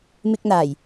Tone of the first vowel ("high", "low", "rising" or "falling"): high